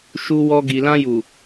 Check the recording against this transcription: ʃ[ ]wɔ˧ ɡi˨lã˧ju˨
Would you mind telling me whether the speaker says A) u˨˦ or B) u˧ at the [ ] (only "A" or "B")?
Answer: B